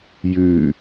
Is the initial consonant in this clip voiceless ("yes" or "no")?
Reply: no